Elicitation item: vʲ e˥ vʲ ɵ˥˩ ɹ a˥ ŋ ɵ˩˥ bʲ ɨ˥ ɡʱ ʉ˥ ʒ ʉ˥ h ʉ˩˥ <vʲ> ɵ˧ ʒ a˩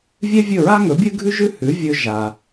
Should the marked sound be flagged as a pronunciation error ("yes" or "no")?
no